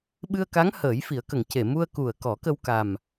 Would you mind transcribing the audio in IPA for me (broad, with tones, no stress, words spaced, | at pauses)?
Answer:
ɓɨ˧ə̯ka˧˥ŋ həː˨˩˦jfi˨˩˦ə̯kə˨˩˨ŋ ce˨˩˨mu˧ə̯ku˨˩ə̯ kɔ˨˩˦kə˧wka˨˩m